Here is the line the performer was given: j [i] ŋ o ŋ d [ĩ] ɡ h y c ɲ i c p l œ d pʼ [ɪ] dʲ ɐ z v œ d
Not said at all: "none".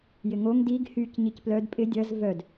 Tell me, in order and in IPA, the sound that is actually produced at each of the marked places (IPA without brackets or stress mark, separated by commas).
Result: ɪ, i, ɪ